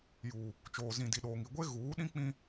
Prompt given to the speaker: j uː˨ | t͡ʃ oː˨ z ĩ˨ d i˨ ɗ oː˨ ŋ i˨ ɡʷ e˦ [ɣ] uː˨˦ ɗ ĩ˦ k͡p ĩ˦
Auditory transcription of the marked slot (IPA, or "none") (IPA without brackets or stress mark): ɣ